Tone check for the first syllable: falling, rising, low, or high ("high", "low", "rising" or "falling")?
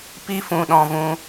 high